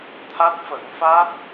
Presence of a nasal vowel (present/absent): absent